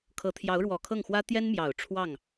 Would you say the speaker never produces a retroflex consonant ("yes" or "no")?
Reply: no